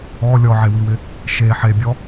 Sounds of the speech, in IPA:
ɔ lʲ ɔ ʕ e w i w ɪ | ʃ e ħ e bʲ ɔ

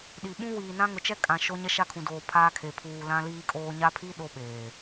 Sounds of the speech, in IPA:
ɗ i˨ ɓ ũ˦ w iː˨ n ã˦ ŋ ʊ˨ t͡ʃ ɛ˦ kʼ ã˨ ʃ o˦ ɲ ɛ˦ ʃ a˦ kʰ ũ˨ d oː˨ pʰ aː˦ kʰ e˨ pʰ uː˨ l ã˦ l iː˦ kʼ oː˦ ɲ a˦ pʰ i˦ ɗ o˦ ɓ eː˨

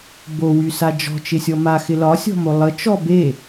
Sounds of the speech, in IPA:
b o w y s a d͡ʒ ɔ̤ t͡ʃ ɪ sʲ ɔ m a x ɪ l ɒ sʲ ɔ̤ m o lˠ ə t͡ʃ ɔ b e

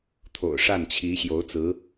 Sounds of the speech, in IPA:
t̪ʰ o̰˨˩ ʊ̯ ʂ a˥˩ n t͡ɕʰ i˧˥ ɕ j o˧˥ ʊ̯ t͡s ɹ̩˧˥

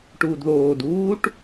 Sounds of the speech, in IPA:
ʈ uː d ð oː d uː ʈ

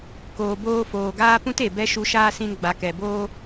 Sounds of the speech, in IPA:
k oː˨ b oː˧ f oː˨ ɡ aː˦ p ũ˦ t e˨ b ɛ˦ ʃ u˧ ʃ aː˦ s ĩ˧ n ɡ͡b a˨ k ɛ˨ b oː˦

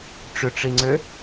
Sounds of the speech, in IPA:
ʈ͡ʂ ʏ ʈ͡ʂ i ŋ͡ǀ ø

